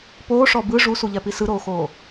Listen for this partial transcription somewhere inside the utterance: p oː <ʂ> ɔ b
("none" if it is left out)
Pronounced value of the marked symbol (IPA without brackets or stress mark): ʂ